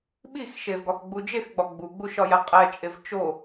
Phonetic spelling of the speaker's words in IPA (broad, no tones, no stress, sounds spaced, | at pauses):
ɓ i x ʃ e v ɡ ɒ x ɡ͡b u d͡ʒ e x ɡ͡b ɒ ɡ͡b u ɡ͡b u ʃ ɒ j æ qʼ æ t͡ʃʼ e v t͡ʃ o